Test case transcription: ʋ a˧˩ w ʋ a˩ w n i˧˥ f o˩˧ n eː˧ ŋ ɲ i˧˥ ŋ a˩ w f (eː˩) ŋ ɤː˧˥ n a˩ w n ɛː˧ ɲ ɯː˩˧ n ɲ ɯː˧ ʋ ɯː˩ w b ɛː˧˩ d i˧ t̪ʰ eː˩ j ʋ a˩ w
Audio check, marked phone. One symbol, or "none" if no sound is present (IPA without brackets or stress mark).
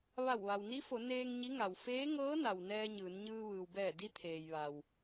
eː˧˥